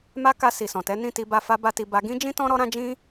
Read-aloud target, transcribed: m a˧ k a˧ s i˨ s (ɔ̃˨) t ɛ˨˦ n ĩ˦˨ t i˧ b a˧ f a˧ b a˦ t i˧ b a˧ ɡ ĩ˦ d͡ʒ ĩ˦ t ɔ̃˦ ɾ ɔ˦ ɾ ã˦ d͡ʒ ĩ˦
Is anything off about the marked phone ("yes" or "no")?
no